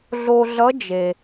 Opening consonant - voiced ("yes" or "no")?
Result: yes